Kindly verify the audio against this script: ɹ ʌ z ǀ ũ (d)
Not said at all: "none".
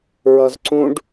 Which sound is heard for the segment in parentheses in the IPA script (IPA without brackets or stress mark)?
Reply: ɖ